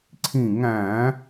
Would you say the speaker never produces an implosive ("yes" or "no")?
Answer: yes